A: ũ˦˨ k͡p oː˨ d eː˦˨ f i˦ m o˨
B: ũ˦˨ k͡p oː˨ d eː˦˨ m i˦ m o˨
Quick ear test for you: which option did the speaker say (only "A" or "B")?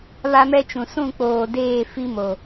A